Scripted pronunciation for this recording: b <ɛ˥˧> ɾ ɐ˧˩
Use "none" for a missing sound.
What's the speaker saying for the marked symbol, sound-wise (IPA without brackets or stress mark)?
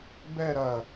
ɛ˥˧